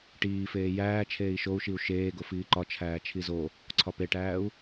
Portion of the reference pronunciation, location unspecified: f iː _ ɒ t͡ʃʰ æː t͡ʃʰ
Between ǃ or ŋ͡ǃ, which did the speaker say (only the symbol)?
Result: ǃ